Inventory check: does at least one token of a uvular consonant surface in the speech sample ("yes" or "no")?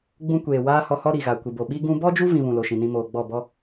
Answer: no